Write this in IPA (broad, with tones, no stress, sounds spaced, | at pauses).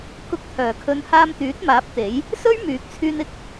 k ʊ˧ k̚ t̪ʰ œː˨˩ kʰ ɵ˨˧ n h aː˧ m t̪ yː˨˥ t̚ m aː˨˥ p̚ t̪ e˨˥ j | s ɵ˥ ɥ m yː˨ k̚ t͡sʰ yː˧ n ɪ˥ k̚